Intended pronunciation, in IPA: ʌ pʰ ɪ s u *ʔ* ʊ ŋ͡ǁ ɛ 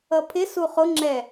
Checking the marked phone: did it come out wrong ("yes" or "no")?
yes